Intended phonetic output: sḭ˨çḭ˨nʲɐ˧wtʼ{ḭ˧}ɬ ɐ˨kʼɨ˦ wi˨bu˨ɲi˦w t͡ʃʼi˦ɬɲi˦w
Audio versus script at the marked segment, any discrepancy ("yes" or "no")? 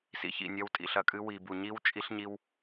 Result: yes